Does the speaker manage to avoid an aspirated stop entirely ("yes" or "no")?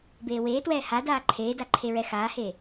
no